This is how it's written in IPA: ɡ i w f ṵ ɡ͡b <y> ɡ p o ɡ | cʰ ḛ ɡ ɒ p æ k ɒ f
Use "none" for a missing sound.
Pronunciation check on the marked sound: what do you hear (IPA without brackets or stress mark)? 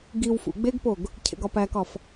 e